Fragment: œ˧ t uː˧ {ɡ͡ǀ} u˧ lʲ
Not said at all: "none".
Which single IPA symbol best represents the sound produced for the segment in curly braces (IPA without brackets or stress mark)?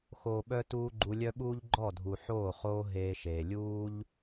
ɡ͡ǃ